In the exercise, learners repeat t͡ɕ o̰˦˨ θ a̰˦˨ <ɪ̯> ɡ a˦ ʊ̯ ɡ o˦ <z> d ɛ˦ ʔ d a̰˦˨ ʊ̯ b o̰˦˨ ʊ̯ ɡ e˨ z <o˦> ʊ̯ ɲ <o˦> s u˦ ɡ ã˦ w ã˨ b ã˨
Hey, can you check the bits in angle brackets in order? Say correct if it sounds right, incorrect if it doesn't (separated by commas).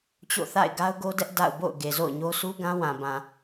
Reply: correct, incorrect, incorrect, correct